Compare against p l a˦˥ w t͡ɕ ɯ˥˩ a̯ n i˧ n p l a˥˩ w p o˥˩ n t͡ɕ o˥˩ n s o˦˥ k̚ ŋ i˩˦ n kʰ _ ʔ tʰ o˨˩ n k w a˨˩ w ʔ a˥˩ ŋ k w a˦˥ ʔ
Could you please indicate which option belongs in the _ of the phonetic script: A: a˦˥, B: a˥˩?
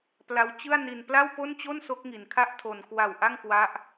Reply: B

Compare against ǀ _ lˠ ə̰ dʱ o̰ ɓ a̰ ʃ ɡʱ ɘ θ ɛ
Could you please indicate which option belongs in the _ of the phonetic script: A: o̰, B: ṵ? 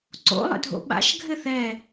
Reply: A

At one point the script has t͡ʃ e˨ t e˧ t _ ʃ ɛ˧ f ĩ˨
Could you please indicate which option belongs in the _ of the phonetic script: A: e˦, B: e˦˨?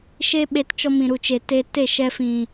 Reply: B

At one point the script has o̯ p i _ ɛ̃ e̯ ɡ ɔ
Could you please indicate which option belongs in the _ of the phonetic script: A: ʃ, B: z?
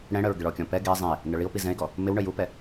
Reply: B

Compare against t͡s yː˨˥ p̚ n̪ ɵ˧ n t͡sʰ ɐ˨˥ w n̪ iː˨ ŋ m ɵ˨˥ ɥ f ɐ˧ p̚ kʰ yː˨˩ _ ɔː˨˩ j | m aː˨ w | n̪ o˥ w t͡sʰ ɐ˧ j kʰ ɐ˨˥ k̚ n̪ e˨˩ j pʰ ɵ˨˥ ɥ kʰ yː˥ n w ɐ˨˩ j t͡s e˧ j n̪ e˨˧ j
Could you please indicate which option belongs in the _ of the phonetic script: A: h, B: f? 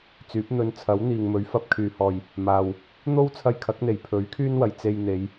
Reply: A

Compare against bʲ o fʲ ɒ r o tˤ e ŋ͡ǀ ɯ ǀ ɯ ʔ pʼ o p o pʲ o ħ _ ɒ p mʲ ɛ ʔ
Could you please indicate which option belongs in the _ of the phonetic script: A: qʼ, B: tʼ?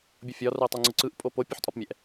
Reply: B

